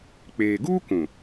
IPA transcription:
k͡p eː˨ ɡ uː˦ kʷ ũ˨

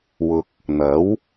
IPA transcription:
w ʊ˨ k̚ | n̪ ɐ˨˥ w

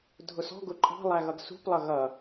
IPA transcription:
dʱ ʊ s ɔ̤ ɡ ʊ ǃʼ ɑ̤ lˠ æ ɣ ʌ ɡ s ṳ p lˠ ʌ ɣ ʌ

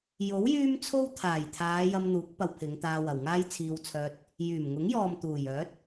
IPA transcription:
j o˨˥ w j yː˥ m t͡sʰ o˥ w t̪ʰ aː˨˩ j t̪ʰ aː˨˧ j ɐ˧ m n̪ uː˨˥ k̚ p ɐ˧ w pʰ ɪ˨˧ ŋ t̪ aː˧ w ɐ˨ w ŋ aː˥ j t͡sʰ iː˧ w t͡sʰ œː˧ t̚ | j yː˨˩ m ŋ ʊ˨˥ ŋ j ɔː˨ m t̪ uː˨˩ j œː˨˥ t̚

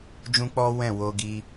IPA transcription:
d͡ʒ ũ˦ k͡p ɔ˦ w ɛ̃˦˨ w o˧ ɡ i˧

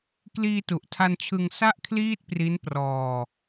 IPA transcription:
k l iː˧ t u˨˩ ʔ tʰ a˧ n t͡ɕʰ ɯ˧ ŋ s a˥˩ ʔ kʰ l iː˥˩ t̚ p r i˦˥ n p r ɔː˧

